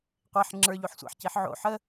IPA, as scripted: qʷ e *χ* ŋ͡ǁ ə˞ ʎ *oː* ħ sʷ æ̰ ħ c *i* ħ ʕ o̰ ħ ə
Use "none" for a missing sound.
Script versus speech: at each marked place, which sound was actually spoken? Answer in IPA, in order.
ħ, o, i

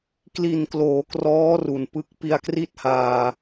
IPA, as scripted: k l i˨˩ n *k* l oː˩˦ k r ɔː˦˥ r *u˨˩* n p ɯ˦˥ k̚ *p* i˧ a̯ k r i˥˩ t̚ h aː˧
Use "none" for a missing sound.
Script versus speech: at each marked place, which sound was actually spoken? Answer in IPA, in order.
k, u˨˩, p

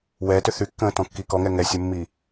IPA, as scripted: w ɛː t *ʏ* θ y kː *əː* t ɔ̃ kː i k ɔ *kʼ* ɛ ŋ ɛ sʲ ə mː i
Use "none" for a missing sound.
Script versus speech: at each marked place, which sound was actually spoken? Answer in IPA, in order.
ʏ, ə̃ː, ŋ

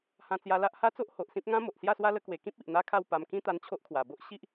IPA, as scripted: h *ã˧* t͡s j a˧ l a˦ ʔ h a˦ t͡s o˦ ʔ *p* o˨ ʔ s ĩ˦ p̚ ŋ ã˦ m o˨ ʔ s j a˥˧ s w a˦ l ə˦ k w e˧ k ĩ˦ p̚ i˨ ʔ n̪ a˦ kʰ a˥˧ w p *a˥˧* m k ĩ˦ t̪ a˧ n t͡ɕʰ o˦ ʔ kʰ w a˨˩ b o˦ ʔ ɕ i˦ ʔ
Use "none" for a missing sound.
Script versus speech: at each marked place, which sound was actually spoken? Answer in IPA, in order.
ã˧, h, a˧

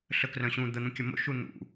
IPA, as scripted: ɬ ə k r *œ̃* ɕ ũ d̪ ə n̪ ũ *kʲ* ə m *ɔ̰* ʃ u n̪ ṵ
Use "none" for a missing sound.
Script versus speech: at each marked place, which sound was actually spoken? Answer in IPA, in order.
œ̃, kʲ, o̰

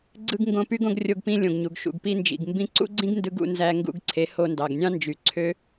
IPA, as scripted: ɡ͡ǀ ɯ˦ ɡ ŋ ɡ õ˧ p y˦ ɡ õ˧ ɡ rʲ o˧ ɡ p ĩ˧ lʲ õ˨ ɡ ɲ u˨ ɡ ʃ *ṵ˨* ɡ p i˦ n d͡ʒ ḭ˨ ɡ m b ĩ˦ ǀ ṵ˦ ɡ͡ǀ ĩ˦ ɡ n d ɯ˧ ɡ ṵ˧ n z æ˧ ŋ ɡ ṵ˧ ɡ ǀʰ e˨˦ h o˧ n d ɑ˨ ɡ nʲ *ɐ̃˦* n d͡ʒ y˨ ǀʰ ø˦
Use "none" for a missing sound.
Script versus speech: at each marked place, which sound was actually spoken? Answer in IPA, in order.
ṵ˨, ɑ̃˦

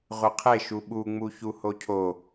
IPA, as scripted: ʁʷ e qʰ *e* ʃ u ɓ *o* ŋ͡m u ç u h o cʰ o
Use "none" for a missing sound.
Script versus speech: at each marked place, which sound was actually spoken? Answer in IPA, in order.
e, u

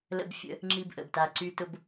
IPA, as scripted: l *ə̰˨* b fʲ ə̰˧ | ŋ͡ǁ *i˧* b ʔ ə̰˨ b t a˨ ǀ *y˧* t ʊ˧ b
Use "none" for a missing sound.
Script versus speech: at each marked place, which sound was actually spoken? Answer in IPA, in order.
ə̰˧, i˧, y˧

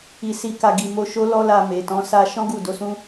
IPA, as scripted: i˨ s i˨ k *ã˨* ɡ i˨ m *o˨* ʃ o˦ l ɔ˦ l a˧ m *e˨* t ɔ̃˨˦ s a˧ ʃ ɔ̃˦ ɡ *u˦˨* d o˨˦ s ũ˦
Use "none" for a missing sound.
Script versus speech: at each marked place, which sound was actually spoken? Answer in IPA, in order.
a˨, o˧, e˨, u˦˨

